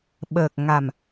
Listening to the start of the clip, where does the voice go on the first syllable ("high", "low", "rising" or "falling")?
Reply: low